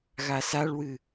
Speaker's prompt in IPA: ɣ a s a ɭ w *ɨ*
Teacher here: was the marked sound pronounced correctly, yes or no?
yes